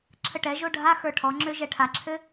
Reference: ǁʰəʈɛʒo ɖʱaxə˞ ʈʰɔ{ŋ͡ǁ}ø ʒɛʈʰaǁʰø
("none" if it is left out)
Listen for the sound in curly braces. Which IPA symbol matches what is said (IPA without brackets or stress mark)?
ŋ͡ǁ